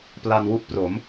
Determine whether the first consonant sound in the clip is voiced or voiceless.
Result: voiceless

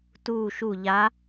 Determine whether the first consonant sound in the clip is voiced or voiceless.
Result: voiceless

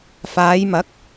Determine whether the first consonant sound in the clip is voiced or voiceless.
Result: voiceless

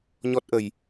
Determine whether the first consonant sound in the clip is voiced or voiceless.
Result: voiced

